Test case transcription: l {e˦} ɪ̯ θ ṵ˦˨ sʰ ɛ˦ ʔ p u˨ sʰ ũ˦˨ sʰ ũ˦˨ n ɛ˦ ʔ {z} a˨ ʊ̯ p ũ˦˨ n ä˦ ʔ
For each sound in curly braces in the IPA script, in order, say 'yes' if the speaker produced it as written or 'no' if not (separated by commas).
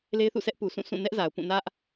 yes, yes